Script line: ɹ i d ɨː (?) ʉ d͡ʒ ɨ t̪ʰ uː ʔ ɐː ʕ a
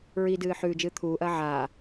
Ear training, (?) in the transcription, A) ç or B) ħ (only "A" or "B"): B